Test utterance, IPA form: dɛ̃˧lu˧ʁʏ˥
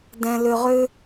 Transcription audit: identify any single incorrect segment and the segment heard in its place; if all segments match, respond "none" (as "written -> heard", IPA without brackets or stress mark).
u˧ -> ʏ˧